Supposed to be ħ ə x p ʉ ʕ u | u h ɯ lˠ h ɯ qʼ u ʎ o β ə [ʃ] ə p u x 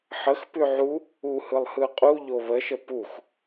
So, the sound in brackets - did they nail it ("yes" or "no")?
yes